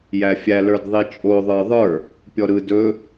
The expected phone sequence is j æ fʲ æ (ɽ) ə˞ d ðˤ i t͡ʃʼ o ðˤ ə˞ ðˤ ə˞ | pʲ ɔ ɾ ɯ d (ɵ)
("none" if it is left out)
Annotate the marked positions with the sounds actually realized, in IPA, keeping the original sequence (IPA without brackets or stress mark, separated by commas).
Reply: l, ɵ